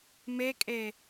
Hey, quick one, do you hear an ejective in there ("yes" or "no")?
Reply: yes